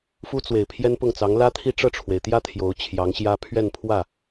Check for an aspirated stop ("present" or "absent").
present